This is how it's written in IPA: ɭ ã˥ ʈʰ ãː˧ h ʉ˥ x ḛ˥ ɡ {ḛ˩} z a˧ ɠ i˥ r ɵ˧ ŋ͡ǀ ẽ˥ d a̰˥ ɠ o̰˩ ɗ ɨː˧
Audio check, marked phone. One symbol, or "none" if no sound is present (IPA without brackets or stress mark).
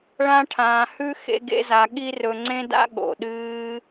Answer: ḛ˥